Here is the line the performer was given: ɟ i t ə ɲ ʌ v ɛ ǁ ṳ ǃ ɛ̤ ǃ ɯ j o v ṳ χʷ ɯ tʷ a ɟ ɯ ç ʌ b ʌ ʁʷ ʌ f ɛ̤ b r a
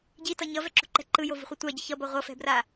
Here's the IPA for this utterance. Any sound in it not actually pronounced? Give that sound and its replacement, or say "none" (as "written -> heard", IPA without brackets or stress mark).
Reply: ə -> ʌ